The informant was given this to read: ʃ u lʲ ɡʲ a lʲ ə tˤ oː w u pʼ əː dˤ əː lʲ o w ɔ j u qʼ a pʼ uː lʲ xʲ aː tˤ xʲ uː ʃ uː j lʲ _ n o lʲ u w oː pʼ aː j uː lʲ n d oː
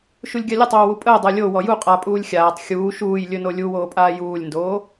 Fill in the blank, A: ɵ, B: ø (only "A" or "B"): A